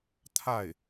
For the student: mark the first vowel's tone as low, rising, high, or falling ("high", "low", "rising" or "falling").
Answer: falling